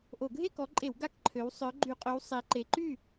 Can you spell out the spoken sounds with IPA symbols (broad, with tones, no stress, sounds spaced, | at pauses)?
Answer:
ʔ o˧˩˧ ɡʱ e˥˨ k ɔ˨˦ ǃʼ e˧˩˧ w ɡ a˥˨ k ǃʰ ø˨˦ w sˤ œ˨˦ ɡ͡ǃ y˧˩˧ qʼ ø˨˦ w sˤ e˨˦ ǃ e˨˦ ǃ y˥˨